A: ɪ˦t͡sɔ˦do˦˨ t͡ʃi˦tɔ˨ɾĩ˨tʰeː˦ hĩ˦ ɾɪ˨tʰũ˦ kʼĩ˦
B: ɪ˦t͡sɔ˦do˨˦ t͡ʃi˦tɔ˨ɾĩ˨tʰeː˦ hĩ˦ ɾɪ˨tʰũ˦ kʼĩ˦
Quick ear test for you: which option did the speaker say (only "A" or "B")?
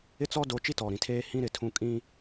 B